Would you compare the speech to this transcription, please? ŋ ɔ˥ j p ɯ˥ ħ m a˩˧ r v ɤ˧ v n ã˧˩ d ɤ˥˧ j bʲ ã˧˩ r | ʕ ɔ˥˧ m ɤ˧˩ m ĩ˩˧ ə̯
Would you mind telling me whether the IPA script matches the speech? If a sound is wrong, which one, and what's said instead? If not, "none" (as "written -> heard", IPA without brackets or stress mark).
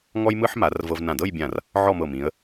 p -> m